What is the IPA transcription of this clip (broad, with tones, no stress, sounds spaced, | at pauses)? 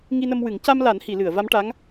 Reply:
ŋ i˧ n ə˧ m w ɨ˨˩˦ ŋ c a˧ m l a˨˩˦ n h i˨˩˨ l ɨ˨˩˨ ə̯ v a˧˥ m ʈ a˧˥ ŋ